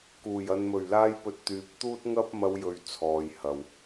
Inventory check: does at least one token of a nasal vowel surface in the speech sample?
no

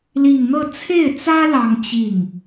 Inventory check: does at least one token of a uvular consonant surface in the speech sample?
no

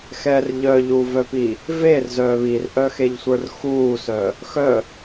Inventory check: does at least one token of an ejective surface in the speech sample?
no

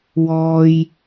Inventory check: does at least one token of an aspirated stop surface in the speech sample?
no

